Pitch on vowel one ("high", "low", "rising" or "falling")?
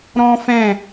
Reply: high